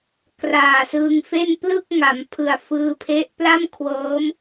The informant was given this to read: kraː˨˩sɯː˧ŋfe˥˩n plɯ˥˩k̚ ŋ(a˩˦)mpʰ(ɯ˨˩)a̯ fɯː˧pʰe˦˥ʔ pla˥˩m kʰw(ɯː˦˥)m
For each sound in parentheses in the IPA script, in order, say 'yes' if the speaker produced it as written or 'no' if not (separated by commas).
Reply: yes, yes, no